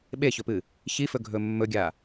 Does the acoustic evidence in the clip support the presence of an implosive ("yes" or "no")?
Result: yes